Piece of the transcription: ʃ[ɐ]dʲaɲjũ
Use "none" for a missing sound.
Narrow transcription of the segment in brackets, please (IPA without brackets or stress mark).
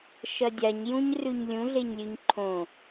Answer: ɐ